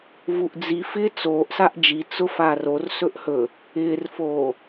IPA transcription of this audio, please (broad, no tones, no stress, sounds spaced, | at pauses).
v u ʔ d͡z i f ɪː t͡s oː ʔ s a ʔ d͡ʒ i t͡s ʊ f aː r o r s ɵ ʔ h ɵ | ɪː r f oː